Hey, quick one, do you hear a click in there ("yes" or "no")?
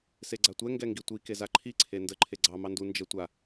yes